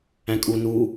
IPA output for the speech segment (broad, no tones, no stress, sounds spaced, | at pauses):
æ̃ kʼ u n u